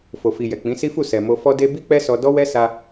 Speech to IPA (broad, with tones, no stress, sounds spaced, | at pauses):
f o˨ f i˨ j ɛ˨ k͡p ĩ˨˦ s i˦ f u˦˨ s ɛ˨ m o˧ f ɔ˧ d e˧ b i˦ k͡p ɛ˦ s ɔ˧ d ɔ˦ w ɛ˦ s a˧